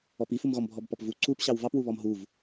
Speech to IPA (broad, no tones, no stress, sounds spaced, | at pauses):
ɔ p i f u m ɣ ɔ m bʱ ɔ b p ɔ p v u ǀ u p ɕ ɑ w v ɑ p w u β ɔ m ɦ u v